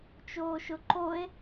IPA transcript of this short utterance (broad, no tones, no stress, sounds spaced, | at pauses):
t͡ʃ oː ʃ ʊ ǃ o e̯